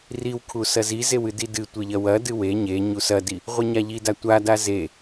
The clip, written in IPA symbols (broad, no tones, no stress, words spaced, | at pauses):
riwkʰu sɐzi zewɨdidɨ tʷeʎɐwɐ dɨwe ɲe ɲusɐdi | ʁʷɨɲaʎida tʷada ze